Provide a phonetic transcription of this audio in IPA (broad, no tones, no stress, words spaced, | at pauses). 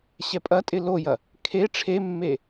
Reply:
ɕɛpʼɐtʼɪ lojɐ | kʰe ʈ͡ʂʰemːe